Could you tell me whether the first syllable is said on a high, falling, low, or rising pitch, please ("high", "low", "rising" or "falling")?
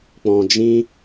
low